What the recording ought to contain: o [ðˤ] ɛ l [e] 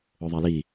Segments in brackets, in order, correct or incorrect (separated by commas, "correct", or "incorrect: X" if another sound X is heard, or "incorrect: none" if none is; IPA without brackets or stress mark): correct, incorrect: i